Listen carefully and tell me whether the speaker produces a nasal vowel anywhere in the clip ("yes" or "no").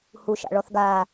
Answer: no